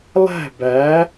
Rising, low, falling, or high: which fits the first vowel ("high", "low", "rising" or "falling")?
falling